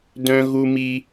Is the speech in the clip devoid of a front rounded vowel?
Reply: no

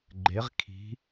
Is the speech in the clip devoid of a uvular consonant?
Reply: no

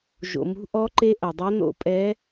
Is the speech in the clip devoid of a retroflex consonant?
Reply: yes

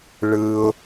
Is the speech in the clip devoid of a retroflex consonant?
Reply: no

